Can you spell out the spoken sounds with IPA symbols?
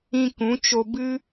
ĩ˧ k ũ˨˦ t͡ʃ o˧ b ɨ˦

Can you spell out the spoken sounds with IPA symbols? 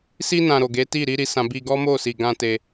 s i˧ n ã˨ ɾ o˨ ɡ e˨˦ t i˦˨ ɾ i˨˦ ɾ i˧ s ã˧ b i˦ ɡ ɔ˦ m o˦˨ s i˨ ɡ ã˧ t e˦

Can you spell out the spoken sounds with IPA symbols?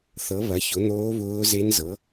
θ ɤ˨˥ β ɐ˨˥ ç ʊ˨˥ n̪ oː˦˥ β ʊː˦˥ z e˦˥ n z ɤ˨˥

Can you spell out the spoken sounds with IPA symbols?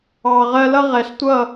ɑː˨ ʁ ɜ˧ l ʌ˦ ʁ ɛ˨ ɬ tʷ ʌ˦˨

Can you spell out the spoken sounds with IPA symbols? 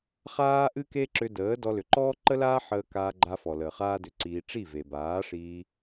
χ aː˦ ʔ ɨ˦ k e˦ ǁ ʏ˧ d əː˨˦ d ɔ˧ l ʏ˨ ǃ ɔː˦ ǃ ə˦ l aː˦ ħ əː˧ k aː˧ ɡ͡ǃ a˧ f ɔ˨ l əː˨ χ aː˦ d ʏ˧ ǀ iː˧ ʈ͡ʂ i˦˨ v e˨ b aː˨˦ ʂ iː˧

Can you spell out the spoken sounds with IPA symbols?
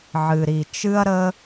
ʕ ɨ˨ ɾ i˨ t͡ʃ ɨ˦ ɐ̯ ɾ ə˦

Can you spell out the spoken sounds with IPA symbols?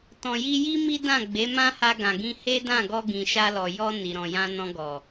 t ɔ̃˨ j i˧ j i˦ m i˦ d ã˦˨ ɡ͡b e˨˦ m ã˦ h a˧ ɡ ã˨ ɡ ĩ˧ h e˦ d ã˦˨ ɡ ɔ˧ ɡ ĩ˨ ʃ a˧ l ɔ˨ j ɔ˧ n i˨ ɾ ɔ̃˨ j ã˧ n ɔ̃˧ ɡ ɔ˨

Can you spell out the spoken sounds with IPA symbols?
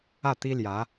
ä˥˩ t̪ i˥ l j ä˧˥

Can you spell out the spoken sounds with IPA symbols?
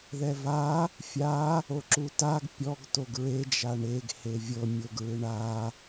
ð ɛ v a | fʲ a | o ǁ u t a ɡ pʲ ɔ ɡ t o ɡ ɹ e d͡ʒ a ɳ e ɡ h e vʲ ɤ mʲ o ɡ ɹ ɯ ɳ a

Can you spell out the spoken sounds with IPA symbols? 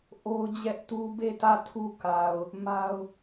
ʔ o˦ ʊ̯ d͡ʑ ɛ˦ ʔ t u˦ b e˦˨ t ä˦˨ tʰ u˦ k a˨ ʊ̯ | m a˦ ʊ̯

